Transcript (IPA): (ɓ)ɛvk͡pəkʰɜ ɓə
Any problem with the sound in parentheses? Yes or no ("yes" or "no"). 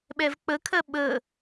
no